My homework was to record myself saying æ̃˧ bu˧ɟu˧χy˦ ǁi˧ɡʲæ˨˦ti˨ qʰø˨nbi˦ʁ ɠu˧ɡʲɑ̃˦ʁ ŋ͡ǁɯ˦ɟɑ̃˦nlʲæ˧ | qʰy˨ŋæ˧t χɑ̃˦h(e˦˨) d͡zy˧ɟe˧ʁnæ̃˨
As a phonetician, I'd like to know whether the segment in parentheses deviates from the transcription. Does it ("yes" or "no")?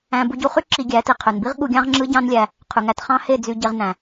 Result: no